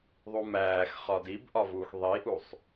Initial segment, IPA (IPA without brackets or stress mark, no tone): ðˤ